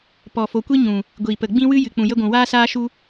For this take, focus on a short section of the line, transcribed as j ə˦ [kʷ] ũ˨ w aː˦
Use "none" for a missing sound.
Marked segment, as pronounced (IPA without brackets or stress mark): ɡʷ